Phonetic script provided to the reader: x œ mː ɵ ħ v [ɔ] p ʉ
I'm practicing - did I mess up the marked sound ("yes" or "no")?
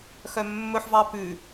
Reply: yes